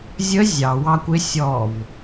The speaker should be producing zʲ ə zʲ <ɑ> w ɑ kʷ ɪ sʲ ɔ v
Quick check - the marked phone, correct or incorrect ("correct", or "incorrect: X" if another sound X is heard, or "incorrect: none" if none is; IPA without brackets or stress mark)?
correct